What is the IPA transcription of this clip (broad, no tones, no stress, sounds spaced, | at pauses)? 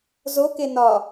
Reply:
z o k e n ɒ